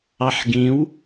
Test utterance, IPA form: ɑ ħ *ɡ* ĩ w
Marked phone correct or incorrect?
correct